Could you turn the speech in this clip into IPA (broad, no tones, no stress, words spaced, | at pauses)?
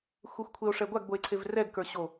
xʷexʷkʷʰeo̯ʂɛɡʷaɡ boe̯ǀʰevrɛɡ kə˞ɕo